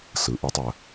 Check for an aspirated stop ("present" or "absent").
absent